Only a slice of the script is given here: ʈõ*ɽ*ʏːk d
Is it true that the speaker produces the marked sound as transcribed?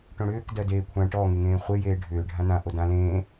yes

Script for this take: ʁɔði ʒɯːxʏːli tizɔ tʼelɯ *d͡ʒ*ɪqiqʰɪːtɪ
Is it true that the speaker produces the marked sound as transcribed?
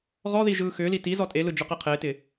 yes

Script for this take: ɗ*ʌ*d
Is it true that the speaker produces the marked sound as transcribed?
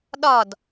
no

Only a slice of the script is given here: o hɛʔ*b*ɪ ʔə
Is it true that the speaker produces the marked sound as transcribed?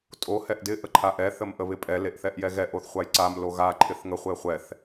no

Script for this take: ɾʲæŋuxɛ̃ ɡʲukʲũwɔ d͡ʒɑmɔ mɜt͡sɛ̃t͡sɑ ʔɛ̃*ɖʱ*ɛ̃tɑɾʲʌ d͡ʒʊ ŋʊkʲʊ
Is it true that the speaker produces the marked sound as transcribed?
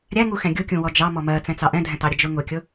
no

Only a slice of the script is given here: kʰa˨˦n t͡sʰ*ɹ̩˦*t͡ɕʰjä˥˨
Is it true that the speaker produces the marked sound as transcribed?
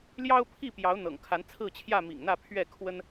no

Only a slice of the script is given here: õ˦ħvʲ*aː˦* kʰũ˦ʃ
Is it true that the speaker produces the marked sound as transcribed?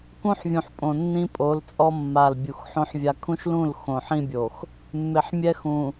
no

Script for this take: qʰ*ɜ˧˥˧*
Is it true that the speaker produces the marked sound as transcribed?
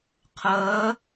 no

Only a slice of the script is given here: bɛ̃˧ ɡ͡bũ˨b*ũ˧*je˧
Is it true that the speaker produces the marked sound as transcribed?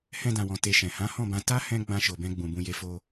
yes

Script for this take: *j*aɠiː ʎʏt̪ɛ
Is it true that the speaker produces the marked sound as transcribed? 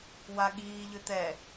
no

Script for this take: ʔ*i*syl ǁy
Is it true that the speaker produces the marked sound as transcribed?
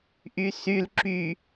no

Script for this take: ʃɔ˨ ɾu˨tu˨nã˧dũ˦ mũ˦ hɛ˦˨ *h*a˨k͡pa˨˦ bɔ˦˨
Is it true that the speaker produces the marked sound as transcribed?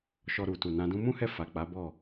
no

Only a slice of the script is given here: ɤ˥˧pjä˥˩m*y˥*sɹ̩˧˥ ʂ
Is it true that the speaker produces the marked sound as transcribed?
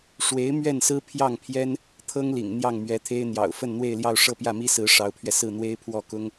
no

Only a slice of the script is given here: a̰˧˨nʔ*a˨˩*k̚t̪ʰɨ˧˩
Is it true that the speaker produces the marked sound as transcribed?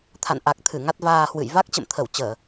yes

